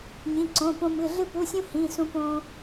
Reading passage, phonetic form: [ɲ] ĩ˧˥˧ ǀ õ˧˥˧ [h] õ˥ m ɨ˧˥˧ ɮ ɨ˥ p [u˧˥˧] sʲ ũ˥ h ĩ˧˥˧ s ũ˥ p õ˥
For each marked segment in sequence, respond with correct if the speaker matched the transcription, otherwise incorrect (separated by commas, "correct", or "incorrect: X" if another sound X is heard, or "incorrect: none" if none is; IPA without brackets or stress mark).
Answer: correct, incorrect: p, correct